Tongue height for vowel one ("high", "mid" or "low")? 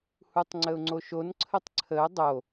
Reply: high